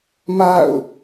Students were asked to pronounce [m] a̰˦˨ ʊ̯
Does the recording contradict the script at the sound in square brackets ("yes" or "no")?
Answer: no